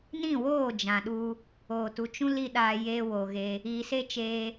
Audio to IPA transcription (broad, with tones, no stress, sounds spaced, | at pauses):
n ĩ˦˨ w oː˦˨ d͡ʒ ã˨ ɗ u˧ | oː˨ t u˧ t͡ʃ ũ˦ l i˧ ɗ aː˧ j eː˧ w o˨ ɣ e˧ | iː˨ s e˦ t͡ʃ eː˧